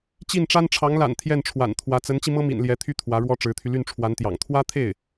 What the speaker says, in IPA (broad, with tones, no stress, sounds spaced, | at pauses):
t͡ɕ i˥˩ n ʈ͡ʂ a˥ n ʈ͡ʂʰ ɑ˧˥ ŋ l a̰˨˩ n t̪ʰ j ɛ˥˩ n ʈ͡ʂʰ w a̰˨˩ n t̪ʰ w ä˧˥ t͡s ə˧˥ n t͡ɕ i˧ m ɤ˥ m ḭ˨˩ n l j ɛ˧˥ t̪ʰ y˥ t̪ʰ w ä˧˥ ɻ w ɔ˥ ʈ͡ʂ ɻ̩˧˥ t̪ʰ y˧ l y˥˩ n ʈ͡ʂʰ w a˧˥ n t̪ j ɑ̰˨˩ ŋ t̪ʰ w ä˥ t̪ʰ e˥˩ ɪ̯